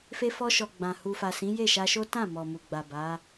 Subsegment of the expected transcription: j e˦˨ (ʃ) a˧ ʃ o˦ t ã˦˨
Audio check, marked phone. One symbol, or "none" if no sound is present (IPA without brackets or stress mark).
ʃ